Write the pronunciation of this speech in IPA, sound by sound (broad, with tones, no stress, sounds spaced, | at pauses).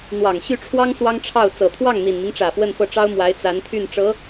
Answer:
n̪ w ɑ˨˩ ŋ ɕ y˥˩ ʈ͡ʂʰ w ɑ˥ ŋ s w ɑ˥ ŋ ʈ͡ʂʰ ɑ˥˩ ʊ̯ t͡s ɤ˨˩ t̪ʰ w ɑ˥˩ ŋ n̪ i˨˩ n m i˦ ŋ ʈ͡ʂ ä˨˩ f w ə˥˧ n f ɤ˥˩ ʈ͡ʂ ɑ˥ ʊ̯ m w a˧˥ ɪ̯ t͡s a˧˥ n t̪ʰ y˥˩ n ʈ͡ʂ ɤ˧˥